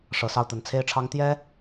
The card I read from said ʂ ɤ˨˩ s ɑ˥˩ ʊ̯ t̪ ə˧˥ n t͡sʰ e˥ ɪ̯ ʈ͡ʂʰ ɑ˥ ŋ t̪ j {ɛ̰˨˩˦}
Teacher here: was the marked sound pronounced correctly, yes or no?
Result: no